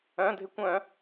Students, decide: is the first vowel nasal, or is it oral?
nasal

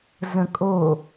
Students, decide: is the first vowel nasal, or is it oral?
nasal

